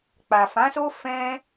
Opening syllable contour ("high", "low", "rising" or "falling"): low